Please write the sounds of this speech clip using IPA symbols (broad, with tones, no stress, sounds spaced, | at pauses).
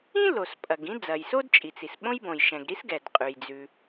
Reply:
ĩ˥ l o˩ s pʼ ɐ˩ ɡ ĩ˥ d͡z ɐ˩ j s o˥ d t͡ʃʼ i˩ t͡s i˩ s ɓ õ˥ j b õ˩ j ʃ ɛ̃˩ ɡ ɾ i˥ s ɡ ɛ˩ d qʼ ʉ˩ j d͡z ʉ˩